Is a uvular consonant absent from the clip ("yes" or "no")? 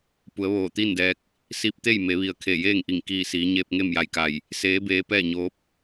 yes